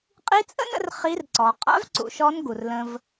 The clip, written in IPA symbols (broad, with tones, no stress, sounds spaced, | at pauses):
qʼ i˧˥ t͡sʼ ə̰˥ n ə̰˧ r χ i˧˥ r ǀ ɔ˩˧ qʼ a̰˧˥ v ǀ ṵ˩˧ ʃ ɔ˧˥ n ɡ u˩ r l ə̃˧ v